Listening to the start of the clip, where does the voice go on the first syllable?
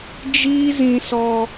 high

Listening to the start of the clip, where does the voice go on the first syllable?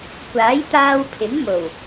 rising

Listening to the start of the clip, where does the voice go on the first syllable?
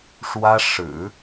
high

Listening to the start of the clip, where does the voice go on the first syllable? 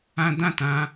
high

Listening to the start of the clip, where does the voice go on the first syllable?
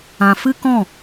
low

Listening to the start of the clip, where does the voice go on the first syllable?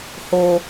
low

